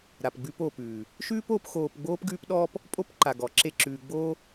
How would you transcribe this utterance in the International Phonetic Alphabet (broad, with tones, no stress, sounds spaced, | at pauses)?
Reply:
ɾ a˨ p ɡ͡b ʉ˧ p o˨ p ʉː˨ | ʃ ʉː˦ p o˨˦ p x oː˧ p ɡ͡b oː˦ p ɡ ʉː˦ p ɗ ɔː˦ p | pʼ o˦ p ǃ a˨ ɡ ɔ˨˦ ǁ e˦ ǁ ʉː˧ ɡ͡b oː˦